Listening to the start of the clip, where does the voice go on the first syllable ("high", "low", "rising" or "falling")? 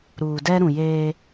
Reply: low